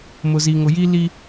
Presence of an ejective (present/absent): absent